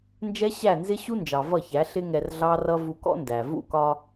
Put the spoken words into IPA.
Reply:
n d͡ʒ ɛ˦ ɕ æ˦˨ n z ɪ˦ ɕ u˦ n d͡ʒ ɑ˨ v ʌ˦˨ ç æ˨˦ ɬ ɪ˦ ŋ ɛ˧ r ɮ ɑ˦ r ʌ˦ v u˧ k ɔ̰˦ n d æ˨ v ṵ˦˨ k ɒ˧

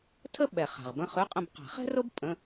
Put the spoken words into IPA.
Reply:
tʰ ə˥˧ ɓ ɛ˨˩ χ a̤˨˩ ʁ b ə̃˥˧ χ ʉ˧˥˧ qʼ ə̃˥˧ b q a̤˨˩˦ χ ɛ̤˥ r o˥ b pʼ ə̃˧˥˧

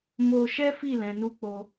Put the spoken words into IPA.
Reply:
m o˧ ʃ ɛ˦ f i˦˨ l ɛ̃˨˦ n u˦ k͡p o˧

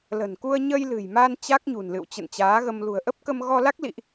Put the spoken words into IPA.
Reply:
l ə̤˨˩ n k u˧ ə̯ ɲ ə˧ j l ɨ̤˨˩ j m a˧ n t͡ɕ a˦˥ k̚ ɲ ṳ˨˩ n l ɨ̰˧˨ w t͡ɕ ə̰˧˨ n t͡ɕ aː˨˦ ɣ ə˧ m l ṳ˨˩ ə̯ ʔ ə˦˥ p̚ k ə˧ m ɣ ɔ˧ l a˦˥ k̚ l ḭ˧˨ ʔ

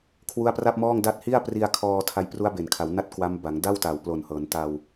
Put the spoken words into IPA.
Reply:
kʰ w u˦˥ a̯ p r a˥˩ p̚ m ɔː˥˩ ŋ d a˦˥ t̚ h i˥˩ a̯ p r i˧ a̯ kʰ ɔː˧ tʰ a˧ j p r u˦˥ a̯ b e˨˩ n kʰ a˩˦ w n a˥˩ t̚ k w a˦˥ m b a˩˦ ŋ d a˥˩ w t a˨˩ w p l o˨˩ n h ɤː˩˦ n t a˧ w

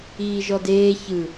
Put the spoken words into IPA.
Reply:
iː ʒ ɔ d eː ç ɯ

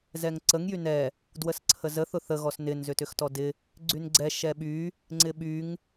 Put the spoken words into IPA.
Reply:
z ɛ ŋ ǀ ə ŋ j y n ɛ | d w ə s ǀʰ ə z ə θ ʊ θ ə ɣ ɔ s n ɪ n z ʏ t ʏ x t ɔ d ɪ | ɡ͡ǀ y n ɡ͡ǀ ɛ ʃ ɛ ɓ y | ŋ͡ǀ ɪ ɓ y ŋ

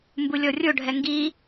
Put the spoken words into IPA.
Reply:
m b u lʲ ɔ rʲ o ɖʱ ɛ ŋ ɡ i

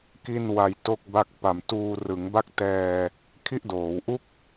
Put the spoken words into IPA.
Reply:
k i˥˩ n w a˧ j t o˥˩ k̚ b a˥˩ k̚ p a˧ m t uː˧ r ɯ˩˦ ŋ b a˥˩ k̚ t ɛː˧ | kʰ i˥˩ ʔ d oː˩˦ w ʔ u˥˩ k̚

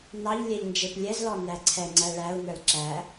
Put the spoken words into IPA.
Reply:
n ɑ ʎ lʲ ɛ ʎ n d͡ʒ e p lʲ ɛ z l ɔ n æ ǀʰ ɛ ŋ͡ǀ æ ɭ æ u̯ n ə˞ l ǁ æ

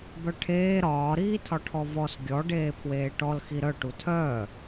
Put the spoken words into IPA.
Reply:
b œ ʈʰ eː ɾ ɒː ɾ iː tʰ ɒ ʈʰ ɔ v ɔ s ɡʲ ɔ ɖ eː pʰ w eː ʈ ɔ l x i ɾ œ ʈ u tʰ œː

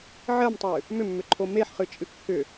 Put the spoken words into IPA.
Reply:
ʕ ɜ m tˤ ɨ | m ʏ mː ʏ ǃʰ o m e ħ χ ɨ t͡ʃʼ ɨ kː ʏ

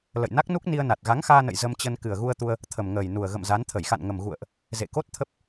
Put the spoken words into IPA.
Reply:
l ə̰˧˨ j n a˦˥ k̚ n u˦˥ k̚ n i˧ ə̯ n a˨˩ t̚ ɣ a˨˦ ŋ x aː˧ n ə̰˧˨ j z ə˧ m t͡ɕ ə˧ n k ɨ˨˩ ə̯ ɣ u˧ ə̯ t̪ u˧ ə̯ | t̪ʰ ə˨˩ m ŋ əː˨˩ j n u˨˩ ə̯ ɣ ə̰˧˨ m z a˨˦ n t̪ʰ ə˧˩ j x a̰˧˨ n ŋ ə˨˩ m ɣ ṵ˧˨ ə̯ ʔ | z ḛ˧˨ k o˦˥ t̚ t̪ʰ ə˦˥ p̚

